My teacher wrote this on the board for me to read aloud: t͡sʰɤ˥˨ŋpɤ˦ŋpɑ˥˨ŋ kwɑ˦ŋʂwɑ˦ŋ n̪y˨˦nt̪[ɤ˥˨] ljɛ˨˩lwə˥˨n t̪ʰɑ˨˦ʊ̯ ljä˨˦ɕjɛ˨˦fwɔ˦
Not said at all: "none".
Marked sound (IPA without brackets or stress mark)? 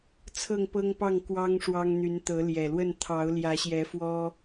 ɤ˨˦